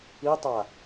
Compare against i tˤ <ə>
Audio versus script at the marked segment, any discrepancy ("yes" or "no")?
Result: yes